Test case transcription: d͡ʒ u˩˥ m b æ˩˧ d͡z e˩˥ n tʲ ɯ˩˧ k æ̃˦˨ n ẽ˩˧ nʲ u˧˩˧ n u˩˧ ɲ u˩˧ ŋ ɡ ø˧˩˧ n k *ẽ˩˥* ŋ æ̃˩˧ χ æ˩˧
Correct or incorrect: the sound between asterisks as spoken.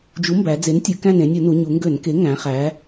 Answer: incorrect: e˩˥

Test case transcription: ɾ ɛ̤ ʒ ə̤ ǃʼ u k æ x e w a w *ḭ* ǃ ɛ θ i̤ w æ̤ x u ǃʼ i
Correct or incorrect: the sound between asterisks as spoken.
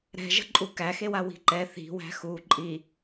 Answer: incorrect: i̤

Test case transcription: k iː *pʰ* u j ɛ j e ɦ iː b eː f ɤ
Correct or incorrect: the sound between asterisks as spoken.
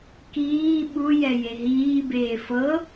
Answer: incorrect: ɓ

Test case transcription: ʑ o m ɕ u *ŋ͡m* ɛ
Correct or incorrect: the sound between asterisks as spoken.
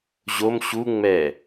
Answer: correct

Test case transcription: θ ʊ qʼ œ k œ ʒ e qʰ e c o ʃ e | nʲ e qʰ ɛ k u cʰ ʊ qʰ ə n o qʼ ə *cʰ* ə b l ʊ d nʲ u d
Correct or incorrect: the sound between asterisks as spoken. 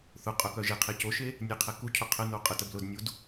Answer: incorrect: t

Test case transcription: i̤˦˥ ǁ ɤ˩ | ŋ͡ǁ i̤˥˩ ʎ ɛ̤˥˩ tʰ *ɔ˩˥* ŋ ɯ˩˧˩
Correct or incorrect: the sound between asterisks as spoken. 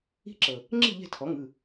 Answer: correct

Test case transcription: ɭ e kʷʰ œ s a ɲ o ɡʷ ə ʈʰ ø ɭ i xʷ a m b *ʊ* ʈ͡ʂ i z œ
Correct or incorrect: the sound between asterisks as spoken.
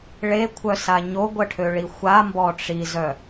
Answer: incorrect: ɔ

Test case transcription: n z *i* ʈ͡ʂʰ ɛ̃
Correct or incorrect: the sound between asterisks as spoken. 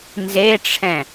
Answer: incorrect: e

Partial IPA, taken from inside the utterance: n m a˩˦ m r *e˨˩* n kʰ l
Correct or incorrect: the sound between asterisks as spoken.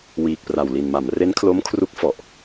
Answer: incorrect: e˦˥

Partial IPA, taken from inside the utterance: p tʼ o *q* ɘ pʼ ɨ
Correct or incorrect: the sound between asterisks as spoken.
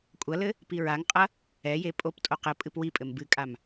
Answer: correct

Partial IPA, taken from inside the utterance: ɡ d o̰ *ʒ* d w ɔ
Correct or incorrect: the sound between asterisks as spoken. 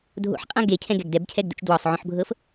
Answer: incorrect: t͡ʃ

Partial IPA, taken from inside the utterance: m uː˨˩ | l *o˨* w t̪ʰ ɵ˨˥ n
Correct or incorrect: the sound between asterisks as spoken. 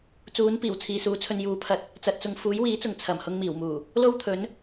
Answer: incorrect: o˥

